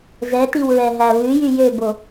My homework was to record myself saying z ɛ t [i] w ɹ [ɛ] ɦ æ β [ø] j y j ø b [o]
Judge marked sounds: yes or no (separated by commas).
yes, yes, no, yes